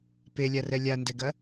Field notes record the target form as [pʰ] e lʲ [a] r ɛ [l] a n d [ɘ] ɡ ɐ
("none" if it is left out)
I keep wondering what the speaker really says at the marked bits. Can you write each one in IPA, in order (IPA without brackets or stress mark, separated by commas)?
p, a, lʲ, ɛ